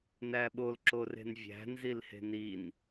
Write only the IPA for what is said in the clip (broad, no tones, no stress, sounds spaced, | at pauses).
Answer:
n æ ɓ o l ǁ o r e̤ n vʲ æ̤ n z i l h e̤ n i n